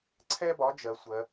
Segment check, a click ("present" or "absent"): present